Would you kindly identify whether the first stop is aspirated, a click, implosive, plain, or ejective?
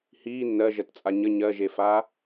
plain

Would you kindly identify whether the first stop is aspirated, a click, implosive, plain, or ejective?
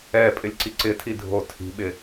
ejective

